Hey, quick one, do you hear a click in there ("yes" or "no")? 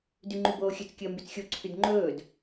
yes